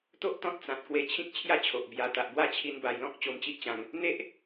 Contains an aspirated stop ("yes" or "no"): yes